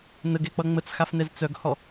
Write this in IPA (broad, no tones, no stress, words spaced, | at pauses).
nəɡɛk͡pʌ ŋ͡mət͡sxafnɛz t͡sœɡhɔ